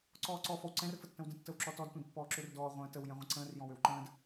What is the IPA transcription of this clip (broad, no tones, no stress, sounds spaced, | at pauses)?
ǀ ɔː ǀ ɔ f ɔ w ǀ ɛ̃ r f ə tː ə̃ w d ə̃ tː ə w ǁ ɔ t ɔ d tʷ ɛ̃ d pː ɔː ǁ ø r d ɔː ʁʷ ə̃ː t ə w j ɛ̃ ʁʷ ə̃ ǀ ə̃ː r j ɔ̃ w ø w ǃ ə̃ː d